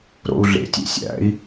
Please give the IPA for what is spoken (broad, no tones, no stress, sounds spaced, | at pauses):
ɾ o̰ u̯ ɮ ḛ tʲ ḛ sʲ æ̰ i̯